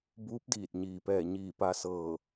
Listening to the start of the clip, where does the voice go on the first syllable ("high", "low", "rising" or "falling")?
rising